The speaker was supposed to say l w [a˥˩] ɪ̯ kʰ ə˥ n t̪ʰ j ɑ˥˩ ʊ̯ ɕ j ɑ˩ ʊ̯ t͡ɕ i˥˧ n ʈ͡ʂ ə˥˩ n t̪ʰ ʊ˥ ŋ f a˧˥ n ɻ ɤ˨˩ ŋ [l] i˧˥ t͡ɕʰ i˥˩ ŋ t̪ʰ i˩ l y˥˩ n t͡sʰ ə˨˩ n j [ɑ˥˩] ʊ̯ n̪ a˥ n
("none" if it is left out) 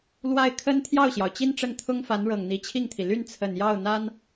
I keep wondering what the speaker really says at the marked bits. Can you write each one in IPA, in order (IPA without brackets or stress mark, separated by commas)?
a˥˩, n̪, ɑ˥˩